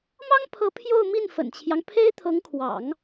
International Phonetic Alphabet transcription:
m ɑ˥ ŋ pʰ ɤ˧˥ pʰ j o˥˧ ʊ̯ m i˥˩ n f ə̰˨˩ n t͡ɕʰ j ɑ˦ ŋ pʰ e˥ ɪ̯ t̪ʰ ɤ˧˥ ŋ kʰ w ɑ̰˨˩˦ ŋ

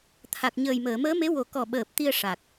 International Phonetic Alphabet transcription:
t̪ʰ a˨˩ k̚ ɲ əː˨˩ j m əː˨˩˨ m əː˧˥ m e˧˥ w o˨˩ k ɔ˨˩ ɓ əː˨˩ p̚ t̪ i˧ ə̯ ʂ a˨˩ k̚

